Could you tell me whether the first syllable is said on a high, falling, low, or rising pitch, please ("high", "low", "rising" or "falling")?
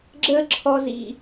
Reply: high